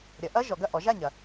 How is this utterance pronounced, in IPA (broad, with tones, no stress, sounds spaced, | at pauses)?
ɾʲ ɐ˩˥ ʔ ɐ˧˥˧ ʒ ɔ˩˥ ɡ ɐ˥˩ ʔ ɔ˩˥ ʒ a˥˩ ɲ ɐ˨